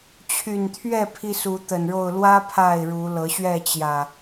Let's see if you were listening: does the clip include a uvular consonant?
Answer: no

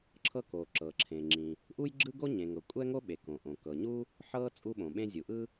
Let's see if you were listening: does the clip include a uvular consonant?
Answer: no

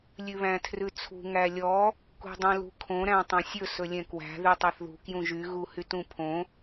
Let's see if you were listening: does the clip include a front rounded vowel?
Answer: yes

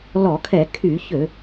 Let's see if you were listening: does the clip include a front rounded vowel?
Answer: yes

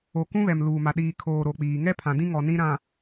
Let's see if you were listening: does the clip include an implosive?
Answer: yes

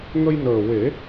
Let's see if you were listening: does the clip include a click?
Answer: no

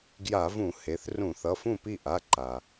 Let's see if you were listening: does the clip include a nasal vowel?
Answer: yes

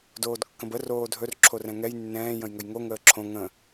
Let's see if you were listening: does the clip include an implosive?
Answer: no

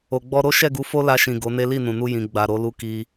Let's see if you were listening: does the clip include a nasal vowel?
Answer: yes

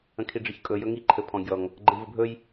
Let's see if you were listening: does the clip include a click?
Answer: yes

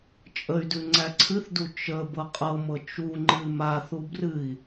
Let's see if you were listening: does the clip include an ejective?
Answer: yes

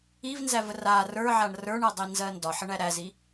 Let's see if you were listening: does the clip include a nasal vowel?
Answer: no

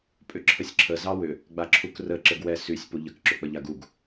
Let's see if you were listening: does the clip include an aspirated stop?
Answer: yes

